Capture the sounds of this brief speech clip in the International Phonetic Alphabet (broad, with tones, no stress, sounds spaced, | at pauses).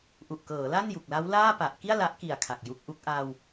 ʔ u˨˩ ʔ k ɤː˩˦ l a˥˩ n j u˨˩ k̚ l a˦˥ w l aː˥˩ p a˨˩ ʔ k i˥˩ a̯ l a˦˥ ʔ k i˨˩ a̯ kʰ a˨˩ k̚ j u˦˥ k̚ ʔ u˦˥ k̚ ʔ aː˧ w